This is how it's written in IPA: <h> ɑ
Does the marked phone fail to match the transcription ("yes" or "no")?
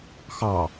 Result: yes